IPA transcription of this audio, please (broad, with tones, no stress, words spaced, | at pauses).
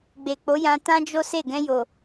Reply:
ɡ͡be˨k͡po˨˦jã˧ tã˦d͡ʒo˦se˦˨ ɡɛ̃˧jo˨